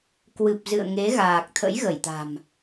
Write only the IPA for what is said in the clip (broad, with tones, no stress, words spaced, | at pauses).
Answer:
kwɨ˨˩p̚ zɨ̰˧˨ə̯ŋe˨˦ɣaː˨˩k̚ t̪ʰə̰˧˥jɣə˧˩jt̪a̤˨˩m